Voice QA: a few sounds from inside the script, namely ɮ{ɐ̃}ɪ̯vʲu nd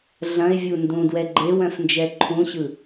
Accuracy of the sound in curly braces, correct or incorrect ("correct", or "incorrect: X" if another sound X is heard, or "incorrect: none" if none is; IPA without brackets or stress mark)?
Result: correct